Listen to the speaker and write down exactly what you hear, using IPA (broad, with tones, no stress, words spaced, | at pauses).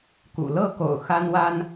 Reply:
kṵ˨˩ lɤ˥˨ko̰˨˩ʊ̯ xa˦nwa˦n